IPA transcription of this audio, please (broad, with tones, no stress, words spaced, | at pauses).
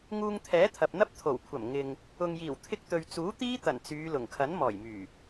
ŋuː˧ŋt̪ʰɛː˨˥t̪ʰɐ˨p̚n̪ɐ˥p̚ t̪ʰo˨˩wkʷʰɐ˨˩m ŋɪ˨ŋ | ʊ˨ŋjiː˨˩wt̪ʰɪ˧k̚t̪ɵ˨ɥ t͡suː˨˥ t̪iː˥ t̪ɐ˨˩n t͡syː˨˧lʊ˨˩ŋ kʰɐ˨˥nmɔː˨˩jmyː˨˩